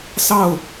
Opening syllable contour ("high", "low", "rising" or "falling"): falling